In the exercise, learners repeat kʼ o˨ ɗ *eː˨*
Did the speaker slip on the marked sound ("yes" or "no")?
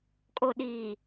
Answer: yes